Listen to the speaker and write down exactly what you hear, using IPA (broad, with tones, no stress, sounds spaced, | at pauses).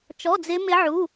t͡ʃ ɔ˧˥˧ d͡z ɪ˦˥ m ɪ˦˥ ʕ u˧˥˧